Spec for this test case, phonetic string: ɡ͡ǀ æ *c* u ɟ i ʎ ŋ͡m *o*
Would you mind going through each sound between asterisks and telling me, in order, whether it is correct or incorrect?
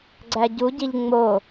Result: incorrect, correct

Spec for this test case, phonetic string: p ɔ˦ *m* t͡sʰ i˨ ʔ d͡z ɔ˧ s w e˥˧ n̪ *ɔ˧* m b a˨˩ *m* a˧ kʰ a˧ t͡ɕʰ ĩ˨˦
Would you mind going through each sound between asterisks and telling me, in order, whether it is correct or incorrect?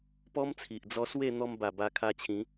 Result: correct, correct, incorrect

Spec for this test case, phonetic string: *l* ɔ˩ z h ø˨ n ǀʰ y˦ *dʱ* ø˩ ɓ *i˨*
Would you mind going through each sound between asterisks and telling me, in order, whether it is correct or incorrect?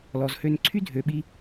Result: correct, correct, correct

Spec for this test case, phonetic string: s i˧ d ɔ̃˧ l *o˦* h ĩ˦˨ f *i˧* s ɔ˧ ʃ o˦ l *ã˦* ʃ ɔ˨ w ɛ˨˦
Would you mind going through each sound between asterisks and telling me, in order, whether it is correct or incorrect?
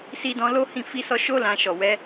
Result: correct, correct, incorrect

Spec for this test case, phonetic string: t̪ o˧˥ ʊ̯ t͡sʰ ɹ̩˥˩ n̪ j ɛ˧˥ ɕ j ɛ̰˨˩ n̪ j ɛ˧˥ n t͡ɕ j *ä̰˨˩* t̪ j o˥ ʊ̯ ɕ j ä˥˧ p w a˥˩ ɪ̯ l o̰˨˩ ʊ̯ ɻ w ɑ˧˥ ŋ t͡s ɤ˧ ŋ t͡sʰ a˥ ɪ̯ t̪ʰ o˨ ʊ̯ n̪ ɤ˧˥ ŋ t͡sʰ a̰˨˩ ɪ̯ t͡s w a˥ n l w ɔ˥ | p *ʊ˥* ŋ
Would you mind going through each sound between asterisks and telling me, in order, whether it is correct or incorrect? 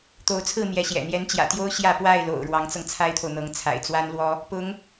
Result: correct, incorrect

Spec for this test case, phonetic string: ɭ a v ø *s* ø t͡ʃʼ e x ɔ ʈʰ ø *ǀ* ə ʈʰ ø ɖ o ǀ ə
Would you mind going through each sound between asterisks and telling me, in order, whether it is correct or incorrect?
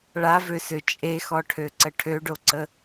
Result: correct, correct

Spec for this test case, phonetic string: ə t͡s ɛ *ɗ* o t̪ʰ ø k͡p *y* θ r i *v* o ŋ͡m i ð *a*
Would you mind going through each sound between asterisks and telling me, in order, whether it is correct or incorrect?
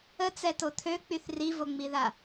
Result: incorrect, correct, correct, correct

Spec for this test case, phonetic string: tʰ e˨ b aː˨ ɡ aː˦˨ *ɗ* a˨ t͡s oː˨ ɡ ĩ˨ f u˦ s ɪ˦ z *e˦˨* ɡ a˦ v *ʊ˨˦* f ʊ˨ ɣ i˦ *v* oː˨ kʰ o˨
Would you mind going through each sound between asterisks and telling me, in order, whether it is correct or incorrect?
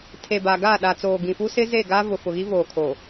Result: correct, correct, incorrect, correct

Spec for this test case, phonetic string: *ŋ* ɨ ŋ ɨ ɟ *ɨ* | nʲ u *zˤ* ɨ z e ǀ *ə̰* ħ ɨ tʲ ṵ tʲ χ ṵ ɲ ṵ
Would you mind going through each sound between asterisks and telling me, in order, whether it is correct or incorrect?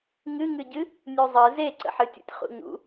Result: correct, correct, correct, correct

